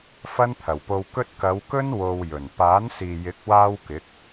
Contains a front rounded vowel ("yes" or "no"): no